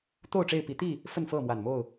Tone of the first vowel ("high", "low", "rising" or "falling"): falling